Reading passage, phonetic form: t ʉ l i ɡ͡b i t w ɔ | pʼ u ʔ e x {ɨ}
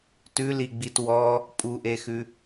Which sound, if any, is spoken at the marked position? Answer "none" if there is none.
ʉ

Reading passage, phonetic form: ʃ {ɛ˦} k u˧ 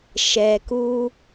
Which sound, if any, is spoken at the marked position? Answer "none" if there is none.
ɛ˨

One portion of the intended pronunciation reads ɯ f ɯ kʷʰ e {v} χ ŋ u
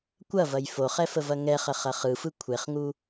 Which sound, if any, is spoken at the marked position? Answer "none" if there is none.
none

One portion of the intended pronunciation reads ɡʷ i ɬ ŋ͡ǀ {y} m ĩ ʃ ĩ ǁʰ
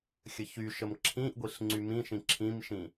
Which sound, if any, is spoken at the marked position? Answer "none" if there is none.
y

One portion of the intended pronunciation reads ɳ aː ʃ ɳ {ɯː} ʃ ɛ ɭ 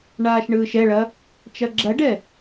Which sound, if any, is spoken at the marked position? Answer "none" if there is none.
ɯː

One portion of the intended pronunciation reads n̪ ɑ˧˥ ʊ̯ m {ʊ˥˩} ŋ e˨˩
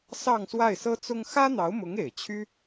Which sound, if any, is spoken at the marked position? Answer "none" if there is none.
ʊ˧˥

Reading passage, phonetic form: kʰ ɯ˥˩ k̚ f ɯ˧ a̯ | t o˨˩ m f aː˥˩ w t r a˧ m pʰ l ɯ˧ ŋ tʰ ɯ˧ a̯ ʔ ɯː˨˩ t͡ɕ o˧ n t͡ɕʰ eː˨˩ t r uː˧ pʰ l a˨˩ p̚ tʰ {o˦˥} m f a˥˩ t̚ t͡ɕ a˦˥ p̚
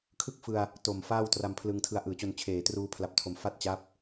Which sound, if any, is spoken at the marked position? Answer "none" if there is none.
o˨˩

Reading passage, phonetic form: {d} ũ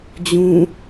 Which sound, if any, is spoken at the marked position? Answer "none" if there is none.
d͡ʑ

